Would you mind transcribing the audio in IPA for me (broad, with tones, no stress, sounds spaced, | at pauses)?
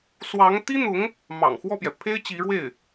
s w ɑ˧˥ ŋ t̪ i˥ n̪ ʊ˧˥ ŋ | m ɑ̰˨˩ ŋ x w ɔ˥˩ p j ɛ˩ pʰ e˥ ɪ̯ t͡ɕ i˧˥ ɻ w e˥˩ ɪ̯